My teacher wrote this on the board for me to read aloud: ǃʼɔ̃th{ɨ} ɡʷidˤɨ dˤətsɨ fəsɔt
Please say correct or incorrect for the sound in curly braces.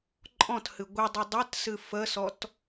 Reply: correct